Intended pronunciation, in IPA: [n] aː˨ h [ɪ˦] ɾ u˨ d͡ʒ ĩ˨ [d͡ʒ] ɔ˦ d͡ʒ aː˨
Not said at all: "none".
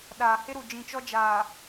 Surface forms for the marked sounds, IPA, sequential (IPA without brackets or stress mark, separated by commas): ɗ, ɪ˦, t͡ʃ